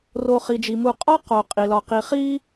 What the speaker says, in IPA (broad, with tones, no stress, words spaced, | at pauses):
ro˨χi˩d͡ʒi˩mu˨ qʼɒ˥qo˩ qʼi˩lɒ˨qi˨χi˥